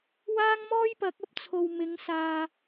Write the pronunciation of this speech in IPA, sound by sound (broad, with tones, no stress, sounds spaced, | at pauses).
w aː˥ ŋ m ɔː˥ j p ɐ˨˥ k̚ ɐ˥ p̚ t͡sʰ o˨ w m ɪ˨˥ ŋ s aː˨